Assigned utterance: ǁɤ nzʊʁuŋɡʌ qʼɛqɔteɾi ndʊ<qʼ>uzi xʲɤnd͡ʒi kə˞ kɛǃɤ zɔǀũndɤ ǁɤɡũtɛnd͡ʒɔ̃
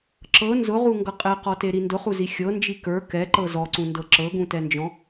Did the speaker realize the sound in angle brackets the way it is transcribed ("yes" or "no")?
no